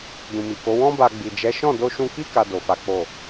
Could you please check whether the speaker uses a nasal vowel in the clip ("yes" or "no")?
yes